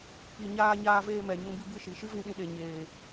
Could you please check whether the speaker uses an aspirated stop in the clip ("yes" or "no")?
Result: no